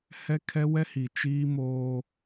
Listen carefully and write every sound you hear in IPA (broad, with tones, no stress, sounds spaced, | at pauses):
h ɛ˦ kʰ ɛ˦ w ɛ˦ h i˨ t͡ʃ iː˦ m oː˦